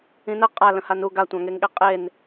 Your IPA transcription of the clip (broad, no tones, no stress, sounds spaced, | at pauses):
ĩ n ə qʼ a l ə̃ h a n u ɡ a tʷ ɑ̃ ŋ e ŋ ɠ e qʼ e n